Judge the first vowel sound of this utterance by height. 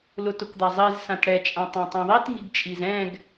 high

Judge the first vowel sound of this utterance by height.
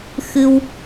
high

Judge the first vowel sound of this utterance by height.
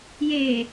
mid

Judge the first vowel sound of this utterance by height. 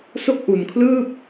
mid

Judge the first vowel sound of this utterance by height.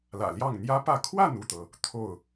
low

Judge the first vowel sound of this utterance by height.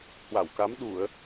low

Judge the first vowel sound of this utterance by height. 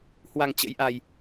low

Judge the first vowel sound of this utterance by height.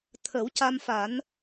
mid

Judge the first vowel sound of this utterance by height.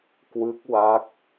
high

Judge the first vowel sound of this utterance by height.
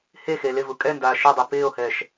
mid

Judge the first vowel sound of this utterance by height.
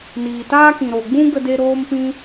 high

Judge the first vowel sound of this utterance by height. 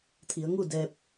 high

